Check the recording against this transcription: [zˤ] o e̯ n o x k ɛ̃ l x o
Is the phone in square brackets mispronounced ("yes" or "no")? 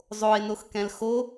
no